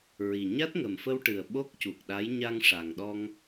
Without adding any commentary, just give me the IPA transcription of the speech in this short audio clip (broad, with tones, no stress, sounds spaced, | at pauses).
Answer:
ɹ i˨˩ ɲ a˦˥ t̚ ŋ ə˨˩ m f ə˧ w ʈ ɨ˨˩ ə̯ ɓ o˦˥ k̚ c u˨˩ k̚ ɗ a˧˥ j ɲ a˧ ŋ ʂ a˨˩ ŋ ɗ ɔ˧ ŋ